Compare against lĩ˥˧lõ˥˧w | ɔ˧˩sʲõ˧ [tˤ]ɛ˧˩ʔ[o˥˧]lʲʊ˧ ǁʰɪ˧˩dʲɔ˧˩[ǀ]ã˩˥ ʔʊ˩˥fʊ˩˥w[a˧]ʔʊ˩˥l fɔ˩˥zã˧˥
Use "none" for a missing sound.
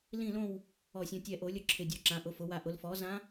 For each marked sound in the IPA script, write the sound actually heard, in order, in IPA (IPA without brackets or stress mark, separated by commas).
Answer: tʲ, o˨˩˦, ǁ, a˧